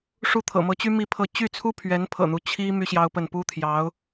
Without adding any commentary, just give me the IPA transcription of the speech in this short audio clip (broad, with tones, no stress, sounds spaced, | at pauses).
ʂ u˥˩ t̪ʰ ɤ̰˨˩ m ɤ˧˥ t͡ɕ y˥ m i˥ pʰ ɤ˥˧ t͡ɕ y˥˩ t͡sʰ u˥ pʰ ɥ ɛ˧˥ n pʰ ɤ̰˨˩ n̪ u˦ t͡ɕʰ i˥ m y˥ ɕ j ɑ˥ ʊ̯ p ə˥˩ n p u˥ t̪ʰ j ɑ˧˥ ʊ̯